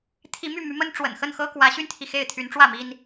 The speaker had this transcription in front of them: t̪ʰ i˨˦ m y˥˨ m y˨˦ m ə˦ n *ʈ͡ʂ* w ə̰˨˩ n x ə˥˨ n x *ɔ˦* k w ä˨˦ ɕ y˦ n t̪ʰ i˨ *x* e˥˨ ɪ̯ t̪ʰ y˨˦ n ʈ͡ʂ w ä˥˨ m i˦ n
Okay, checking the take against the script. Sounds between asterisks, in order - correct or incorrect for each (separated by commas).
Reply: correct, incorrect, correct